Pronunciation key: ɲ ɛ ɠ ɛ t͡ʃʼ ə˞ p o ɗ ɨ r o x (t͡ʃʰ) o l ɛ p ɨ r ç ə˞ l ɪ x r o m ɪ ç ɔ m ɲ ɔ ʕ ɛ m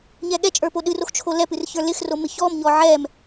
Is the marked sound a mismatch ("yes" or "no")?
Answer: no